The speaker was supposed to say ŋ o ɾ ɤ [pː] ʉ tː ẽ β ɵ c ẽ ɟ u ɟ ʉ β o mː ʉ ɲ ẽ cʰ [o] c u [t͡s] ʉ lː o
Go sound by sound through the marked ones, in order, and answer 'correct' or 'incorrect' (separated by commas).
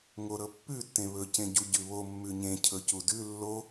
correct, incorrect, incorrect